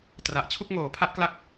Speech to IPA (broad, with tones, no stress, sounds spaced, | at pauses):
t r a˨˩ ʔ t͡ɕʰ u˥˩ k̚ ŋ oː˨˩ pʰ a˦˥ ʔ k l a˦˥ k̚